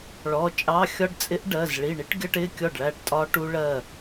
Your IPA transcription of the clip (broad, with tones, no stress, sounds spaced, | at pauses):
ɭ ɔ˩˧˩ t͡ʃʼ ɑ˧˥˧ xʲ ɒ˥ ɖ t͡sʼ ɪ˧˥ ʔ ɖ ɜ˩˧˩ z ɭ i˩˧˩ ɳ i˥ ʈ ɡʲ ʌ˥ ʈ ɪ˧˥˧ kʲ ɔ˥˩ ɖ ɭ æ˥˩ ʈ tʼ ɒ˥ ʈ u˥ ɭ ɜ˥˩